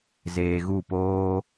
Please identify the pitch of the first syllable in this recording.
low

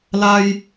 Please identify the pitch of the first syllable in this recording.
high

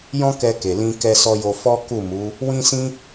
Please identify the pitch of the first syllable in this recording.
high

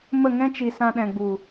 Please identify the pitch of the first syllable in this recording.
falling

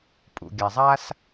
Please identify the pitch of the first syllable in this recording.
low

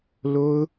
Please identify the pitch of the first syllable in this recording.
high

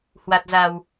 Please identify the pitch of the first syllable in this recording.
low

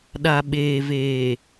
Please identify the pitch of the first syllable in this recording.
low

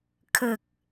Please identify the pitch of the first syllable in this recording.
low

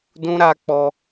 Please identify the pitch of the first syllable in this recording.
high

